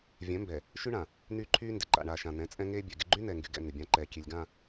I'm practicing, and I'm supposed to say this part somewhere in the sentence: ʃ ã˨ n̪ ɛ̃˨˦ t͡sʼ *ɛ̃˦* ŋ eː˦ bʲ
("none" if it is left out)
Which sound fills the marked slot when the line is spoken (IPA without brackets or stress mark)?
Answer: ɛ̃˦